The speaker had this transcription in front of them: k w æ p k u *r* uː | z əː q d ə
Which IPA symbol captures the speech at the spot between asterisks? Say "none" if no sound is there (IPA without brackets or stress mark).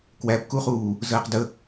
χ